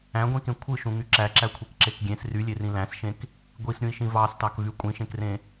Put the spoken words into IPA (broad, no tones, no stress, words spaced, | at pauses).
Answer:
æ̃ɡʷĩkẽ kʷʰɯʃũŋy ǁæǁækʷʰekǁek ɡʲẽs rylʲerĩ læ̃sʃẽk | ɡʷisɾʲũi̯ʃĩ vɑstɑkvy kʷʼĩʃẽkrẽ